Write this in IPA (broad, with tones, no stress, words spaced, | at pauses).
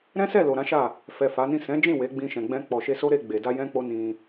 ɾɛ̃˦sɛ˦˨lo˨ ɾã˨˦ʃa˦˨ | fɛ˨ fa˨˦nĩ˦˨ sɛ̃˨˦d͡ʒĩ˦˨ we˨˦ɡ͡bĩ˧ʃɛ̃˨ɡ͡bɛ̃˧ k͡pɔ˨ʃe˧so˦ɾe˧ ɡ͡be˨da˧ jɛ̃˦k͡po˦ nĩ˧